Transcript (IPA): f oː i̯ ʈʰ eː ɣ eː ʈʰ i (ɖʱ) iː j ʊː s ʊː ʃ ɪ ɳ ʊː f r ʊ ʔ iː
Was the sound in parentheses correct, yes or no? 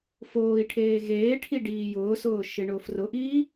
no